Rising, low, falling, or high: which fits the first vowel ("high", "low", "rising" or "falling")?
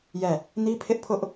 falling